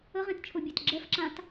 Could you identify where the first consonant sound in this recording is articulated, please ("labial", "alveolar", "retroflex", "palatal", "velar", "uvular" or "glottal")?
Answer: uvular